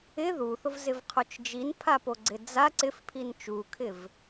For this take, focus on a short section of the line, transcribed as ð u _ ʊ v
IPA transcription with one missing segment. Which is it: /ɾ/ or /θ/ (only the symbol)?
θ